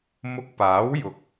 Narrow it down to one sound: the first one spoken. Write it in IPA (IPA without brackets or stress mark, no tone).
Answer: m